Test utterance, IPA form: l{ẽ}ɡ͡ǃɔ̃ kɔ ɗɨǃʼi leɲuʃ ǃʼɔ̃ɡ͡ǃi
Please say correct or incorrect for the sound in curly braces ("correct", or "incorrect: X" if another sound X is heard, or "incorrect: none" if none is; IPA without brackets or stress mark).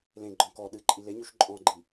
correct